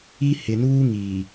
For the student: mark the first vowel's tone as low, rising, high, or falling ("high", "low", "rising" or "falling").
high